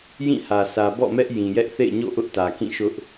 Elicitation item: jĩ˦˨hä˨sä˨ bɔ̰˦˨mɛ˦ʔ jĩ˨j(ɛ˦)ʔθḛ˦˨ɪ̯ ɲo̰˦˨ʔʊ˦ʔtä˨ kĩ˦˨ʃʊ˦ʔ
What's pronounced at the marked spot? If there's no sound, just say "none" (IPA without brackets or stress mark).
ɛ˦